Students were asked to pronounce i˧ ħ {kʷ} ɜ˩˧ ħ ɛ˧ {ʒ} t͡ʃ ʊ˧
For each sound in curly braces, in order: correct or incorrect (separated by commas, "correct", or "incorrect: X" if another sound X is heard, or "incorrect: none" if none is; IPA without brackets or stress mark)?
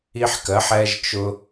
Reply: incorrect: k, correct